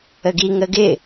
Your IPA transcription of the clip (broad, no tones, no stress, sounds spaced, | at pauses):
ə ɡ i ŋ ə ɡ ɪ